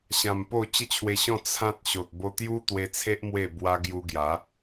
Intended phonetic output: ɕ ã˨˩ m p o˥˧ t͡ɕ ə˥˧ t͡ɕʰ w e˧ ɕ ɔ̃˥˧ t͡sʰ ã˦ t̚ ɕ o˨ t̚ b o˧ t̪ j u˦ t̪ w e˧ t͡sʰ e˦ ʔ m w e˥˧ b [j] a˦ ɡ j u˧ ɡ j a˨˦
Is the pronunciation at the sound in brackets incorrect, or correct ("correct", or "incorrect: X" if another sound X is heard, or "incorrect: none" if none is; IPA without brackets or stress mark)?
incorrect: w